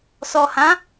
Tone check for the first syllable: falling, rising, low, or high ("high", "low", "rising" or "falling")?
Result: low